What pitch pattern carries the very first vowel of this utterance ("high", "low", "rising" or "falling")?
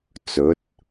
rising